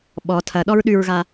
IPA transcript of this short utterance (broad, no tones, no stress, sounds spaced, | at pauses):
ɓ ɔ tʰ ɐ ɗ ɔ ɹ ɗ ʉ ɹ ɣ a